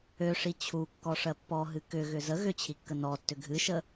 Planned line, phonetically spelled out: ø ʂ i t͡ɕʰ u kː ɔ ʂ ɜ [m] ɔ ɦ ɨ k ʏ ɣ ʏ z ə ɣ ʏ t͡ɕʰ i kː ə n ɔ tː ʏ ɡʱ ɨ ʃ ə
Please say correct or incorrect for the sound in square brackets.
incorrect: pː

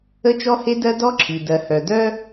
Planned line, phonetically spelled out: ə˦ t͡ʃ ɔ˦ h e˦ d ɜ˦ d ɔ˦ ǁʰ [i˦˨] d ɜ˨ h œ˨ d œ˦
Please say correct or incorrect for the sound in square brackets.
incorrect: i˨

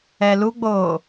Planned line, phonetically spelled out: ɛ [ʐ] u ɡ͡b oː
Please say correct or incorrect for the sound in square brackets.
incorrect: l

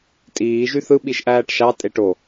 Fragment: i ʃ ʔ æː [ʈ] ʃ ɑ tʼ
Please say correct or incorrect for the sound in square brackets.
correct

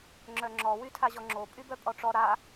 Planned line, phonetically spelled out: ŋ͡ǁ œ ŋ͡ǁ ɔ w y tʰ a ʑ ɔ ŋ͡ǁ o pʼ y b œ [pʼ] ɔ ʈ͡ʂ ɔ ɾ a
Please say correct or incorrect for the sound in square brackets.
correct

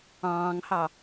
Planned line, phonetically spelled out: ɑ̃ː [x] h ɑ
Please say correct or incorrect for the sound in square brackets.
incorrect: ŋ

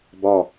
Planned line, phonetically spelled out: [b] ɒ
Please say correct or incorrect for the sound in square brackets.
correct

